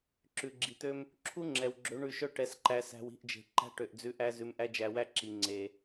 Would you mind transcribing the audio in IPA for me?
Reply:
ǁ ʉ˨ ɡ͡ǁ i˨ t̪ ø˦ m | ǁʰ u˦ ŋ͡ǁ ɛ˨ w ɡ͡ǁ ø˨˦ ɳ ʉ˧ ʃ œ˦ ʈ ɛ˧ s ǃ æ˧ s æ̤˧ w i̤˦˨ ʔ d͡ʒ e̤˨ ǃ æ̤˦ ʈ ø˨ ʔ d͡z ʉ˧ ʔ æ˦ z ʉ˧ m ʔ æ˦ d͡ʒ æ˧ w æ˦ ǁ i˨ ŋ͡ǀ e˨

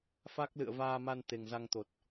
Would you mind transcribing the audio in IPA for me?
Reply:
f a˦˥ k̚ l ɨ̰˧˨ ə̯ v aː˧ m a˧ n t̪ e˨˩ ŋ z a˧ ŋ t̪ o˨˩ t̚

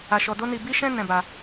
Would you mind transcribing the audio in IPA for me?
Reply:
a˧ ʃ ɔ˧ d o˦ n i˧ b i˦ ʃ ɛ̃˦ n ɛ̃˧ b a˧

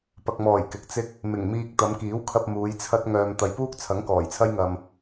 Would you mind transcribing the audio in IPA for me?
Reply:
p ɐ˨ k̚ m ɔː˨˩ j k ɪ˨˥ k̚ t͡s ɪ˥ k̚ | m ɪ˨˩ ŋ m iː˧ k̚ t̪ ɐ˨˧ m k iː˨˥ w kʰ ɐ˧ p̚ m uː˨˧ j t͡sʰ ɐ˥ t̚ ŋ œː˧ m t̪ ɐ˨ j p uː˥ k̚ t͡sʰ ɐ˨˥ ŋ k ɔː˨˩ j t͡sʰ ɐ˥ j ŋ ɐ˧ m

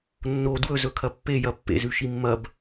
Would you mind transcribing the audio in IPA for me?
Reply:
nː o d w ɵ z ɵ kʰ ɐ pː e j ɐ pː ḛ z ʉ ʃ i mː ɐ b

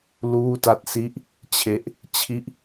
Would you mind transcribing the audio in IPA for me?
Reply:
l uː˥˩ t a˥˩ t̚ s i˦˥ ʔ | t͡ɕʰ e˦˥ ʔ | t͡ɕʰ i˥˩ ʔ

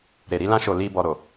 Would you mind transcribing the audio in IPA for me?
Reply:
ɾ e˨ ɾ i˧ l ã˧ ʃ o˨ l i˨ b ɔ˨ ɾ o˨

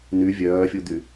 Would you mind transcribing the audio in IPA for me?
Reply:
n̪ y vʲ œː fʲ u d̪ y

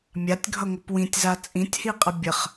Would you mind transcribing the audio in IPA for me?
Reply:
mʲ a tʲ ɡʱ ʌ ŋʷ ʌ p w ĩ tʲ z a t͡sʼ ĩ tʲ h i qʼ ə bʲ ə χ

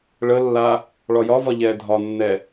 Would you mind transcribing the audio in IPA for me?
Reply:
ɭ ə lː a | ɭ ɒ j ɒ v ɒ ʎ ɛː dʱ ɒ nː ɛ

